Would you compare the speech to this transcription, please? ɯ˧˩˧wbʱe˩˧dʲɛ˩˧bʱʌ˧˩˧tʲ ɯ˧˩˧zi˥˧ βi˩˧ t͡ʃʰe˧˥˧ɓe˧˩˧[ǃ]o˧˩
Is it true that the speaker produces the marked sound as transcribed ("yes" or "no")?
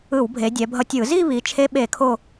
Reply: no